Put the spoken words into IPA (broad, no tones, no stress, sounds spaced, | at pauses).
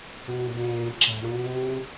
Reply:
ũː b ẽː ǁ a̤ ɽ ũː